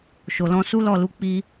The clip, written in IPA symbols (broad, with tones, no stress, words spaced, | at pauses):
ʃo˨ lɔ̃˧su˦lɔ˦˨lu˧ k͡pi˧